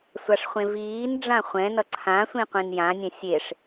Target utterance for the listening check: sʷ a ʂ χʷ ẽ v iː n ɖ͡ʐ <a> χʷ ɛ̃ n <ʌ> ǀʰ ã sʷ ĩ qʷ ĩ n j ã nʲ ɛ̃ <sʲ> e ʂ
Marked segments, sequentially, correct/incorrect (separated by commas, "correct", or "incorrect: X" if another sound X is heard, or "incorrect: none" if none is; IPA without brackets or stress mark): incorrect: ã, correct, correct